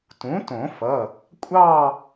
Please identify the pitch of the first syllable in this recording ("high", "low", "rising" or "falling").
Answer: rising